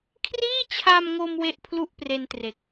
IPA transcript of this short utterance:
kʰ r iː˥˩ t͡ɕʰ a˧ m ŋ o˧ m w e˥˩ ʔ pʰ l u˥˩ ʔ p r e˧ n t r e˨˩ k̚

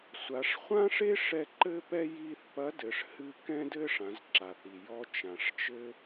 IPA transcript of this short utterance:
sʷ a˩˧ ʂ χʷ ã˥ ʂ e˥ ʂ ɛ˧ ǃ ɘ˧ p ɛ˧ j i˧ θ p ɐ˧˥ d ɘ˩˧ ʂ h ɨ˧ k ɛ̃˧ d ɘ˧ ʂ ã˩˧ z ǁ a˩ θ i˩ j ɔ˧ t͡ʃ ã˩ ʂ t͡ʃ ɘ˧

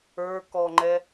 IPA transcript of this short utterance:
ə˞ k ɔ ŋ͡ǃ ɛ

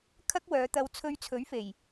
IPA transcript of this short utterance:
kʰ ɐ˥ k̚ w œː˨˧ t̪ ɐ˧ w t͡sʰ ɵ˧ ɥ t͡sʰ ɵ˨˥ ɥ f e˨˩ j

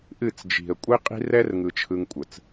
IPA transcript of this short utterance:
ʔ ɨ˦˨ t͡s d͡ʒ i̤˨ ə̯ kʷʼ i˦ qʼ i̤˦ r ɛ˦ r ŋ ɯ˦ t͡ʃʰ ɯ˦ ŋ kʷʼ ə˨ t͡s

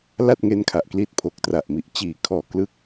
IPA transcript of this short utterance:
l a˥˩ t̚ ŋ e˦˥ n kʰ a˨˩ ʔ k l i˦˥ t̚ pʰ o˨˩ k̚ t r a˨˩ ʔ m i˨˩ ʔ t͡ɕ iː˨˩ kʰ ɔː˨˩ k l ɯ˦˥ k̚

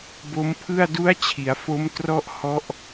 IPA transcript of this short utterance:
b o˦˥ m pʰ ɯ˥˩ a̯ d u˦˥ a̯ t͡ɕʰ i˩˦ a̯ f o˦˥ m t r ɔ˥˩ ʔ h ɔ˦˥ ʔ

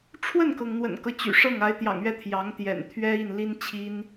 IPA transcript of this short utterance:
ʈ͡ʂʰ w ə˥˩ n k ɤ˩ ŋ n̪ w ə̰˨˩ n k ɤ˦ t͡ɕ y̰˨˩ ʂ ɤ˥˩ ŋ a˧˥ ɪ̯ t̪ j ɑ̰˨˩ ŋ ɥ ɛ˥˩ t̪ʰ j ɑ˧˥ ŋ t̪ j ɛ̰˨˩ n t̪ʰ ɥ ɛ˥ i˥˩ n l i˥ n t͡ɕʰ i˥ n

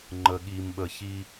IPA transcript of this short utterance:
ŋ͡ǃ ə˨ ɠ i˨ m ɓ ə˨ ç i˦

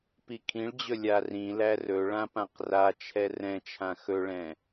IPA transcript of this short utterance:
p i kʰ ĩ ɭ d͡ʑ ɵ lʲ a r ĩ l æ r ɵ ɭ ã p ã q r a t͡ʃʰ ɛ r ɛ̃ t͡ʃʰ ã x ɵ ɭ ɛ̃

